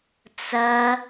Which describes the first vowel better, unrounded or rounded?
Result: unrounded